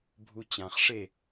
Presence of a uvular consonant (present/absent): present